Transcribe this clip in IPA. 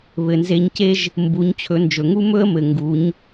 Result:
βɘ˩nze˧ɲce˥ʒ | mbu˩˧ɲt͡ɕʰɵ˩˧nd͡ʒɵ˩ŋu˥ mɵ˥ə̯mɘ˩ ŋɡu˩˧ɲ

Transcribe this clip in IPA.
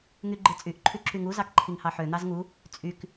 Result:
ŋyɡ͡ǃɯt͡sʼyʔ ǃʰyǁyŋu zɑkǃʰiŋhɑħø n̪ɑzŋu | t͡sʼyk

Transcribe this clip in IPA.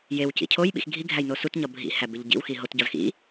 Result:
jew cḭcʰoj ɓḭxɡʱi ɡʱæjnosut ɲɒbʱḭ hæbeʎɟḭw xiɦot ɟɒzxḭ

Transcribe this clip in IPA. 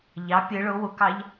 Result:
ʎɑ pʲɯ ɭʊ wʊkɑʎ

